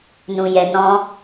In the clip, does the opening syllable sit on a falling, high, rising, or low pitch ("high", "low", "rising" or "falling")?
low